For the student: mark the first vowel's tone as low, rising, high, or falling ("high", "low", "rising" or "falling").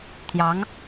rising